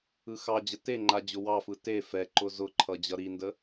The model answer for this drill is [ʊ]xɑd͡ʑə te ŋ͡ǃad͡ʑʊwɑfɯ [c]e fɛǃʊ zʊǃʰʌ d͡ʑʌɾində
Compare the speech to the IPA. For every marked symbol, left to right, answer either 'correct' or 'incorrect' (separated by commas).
incorrect, incorrect